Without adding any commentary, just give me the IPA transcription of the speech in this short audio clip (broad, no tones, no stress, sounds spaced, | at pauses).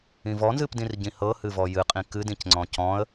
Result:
ĩ v ɔ n z ɨ p d ĩ r ɟ ĩ h ɤ h ɨ v ɔ j ɨ qʼ ĩ k ɨ d ĩ c ŋ͡ǀ ɔ̃ c ɔ̃ ə̯